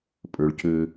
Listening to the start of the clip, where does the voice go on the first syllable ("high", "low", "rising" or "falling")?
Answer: low